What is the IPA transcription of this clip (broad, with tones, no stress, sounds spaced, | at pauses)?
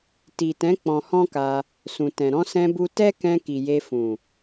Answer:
t i˨ t ɛ̃˨˦ k͡p ɔ̃˧ h ɔ̃˦ k a˧ | s ũ˨ t ɛ̃˨ ɾ ɔ̃˧ s ɛ̃˧ b u˧ t ɛ˦ k ɛ̃˧ k i˨ j e˧ f ũ˨